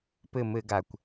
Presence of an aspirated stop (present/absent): absent